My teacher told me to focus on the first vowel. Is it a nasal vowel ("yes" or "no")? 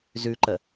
no